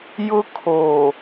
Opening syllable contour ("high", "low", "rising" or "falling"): high